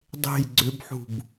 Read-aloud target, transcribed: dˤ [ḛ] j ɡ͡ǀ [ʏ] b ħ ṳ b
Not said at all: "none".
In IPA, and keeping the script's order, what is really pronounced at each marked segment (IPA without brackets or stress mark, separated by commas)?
e̤, ʏ